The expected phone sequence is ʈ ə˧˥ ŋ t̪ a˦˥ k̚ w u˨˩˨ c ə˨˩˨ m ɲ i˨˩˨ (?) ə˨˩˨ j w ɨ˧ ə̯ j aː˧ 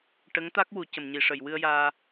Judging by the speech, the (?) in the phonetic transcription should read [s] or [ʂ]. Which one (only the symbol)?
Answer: ʂ